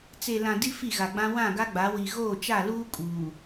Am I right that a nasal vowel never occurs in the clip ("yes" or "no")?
no